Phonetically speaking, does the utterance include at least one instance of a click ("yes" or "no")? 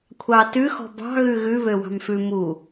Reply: no